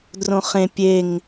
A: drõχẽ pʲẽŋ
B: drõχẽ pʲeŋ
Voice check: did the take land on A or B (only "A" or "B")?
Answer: B